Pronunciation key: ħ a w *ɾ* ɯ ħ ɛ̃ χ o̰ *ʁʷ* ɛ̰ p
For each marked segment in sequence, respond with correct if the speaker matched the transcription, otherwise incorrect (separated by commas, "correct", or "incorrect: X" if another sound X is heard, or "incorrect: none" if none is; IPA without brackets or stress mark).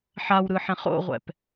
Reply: correct, correct